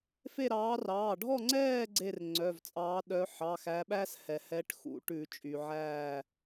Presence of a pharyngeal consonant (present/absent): present